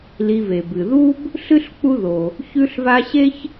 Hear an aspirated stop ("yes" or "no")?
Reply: no